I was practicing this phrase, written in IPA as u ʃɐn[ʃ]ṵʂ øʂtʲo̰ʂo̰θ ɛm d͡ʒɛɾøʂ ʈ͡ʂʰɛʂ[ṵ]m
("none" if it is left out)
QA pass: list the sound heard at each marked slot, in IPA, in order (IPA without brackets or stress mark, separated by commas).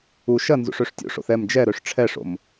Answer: z, o̰